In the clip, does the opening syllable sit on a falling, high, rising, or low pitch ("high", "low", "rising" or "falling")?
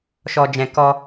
high